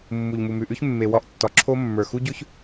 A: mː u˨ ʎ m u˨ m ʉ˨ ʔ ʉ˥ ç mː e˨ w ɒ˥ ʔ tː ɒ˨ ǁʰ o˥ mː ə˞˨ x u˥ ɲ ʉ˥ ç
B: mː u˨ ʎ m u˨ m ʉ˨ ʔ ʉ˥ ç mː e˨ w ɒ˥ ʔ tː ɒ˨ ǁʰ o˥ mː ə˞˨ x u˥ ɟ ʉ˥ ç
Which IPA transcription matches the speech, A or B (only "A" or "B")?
B